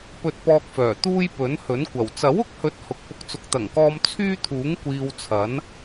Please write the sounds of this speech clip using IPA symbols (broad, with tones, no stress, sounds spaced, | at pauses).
p ɵ˧ t̚ p ɔː˧ k̚ f œː˨˩ t̪ uː˥ j p ɵ˨˥ n h ɵ˨˥ n kʷ ɐ˨˩ w t͡s ɐ˨˥ w ʊ˨ k̚ h ɵ˨˥ t̚ h ʊ˨ k̚ p ʊ˨˥ k̚ t͡s ʊ˨ k̚ t̪ ɐ˨˩ ŋ k ɔː˧ m t͡sʰ yː˥ t̪ʰ uː˨˥ ŋ kʷ iː˧ w t͡sʰ ɐ˨˥ n